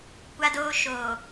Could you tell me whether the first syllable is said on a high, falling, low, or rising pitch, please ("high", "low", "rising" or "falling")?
high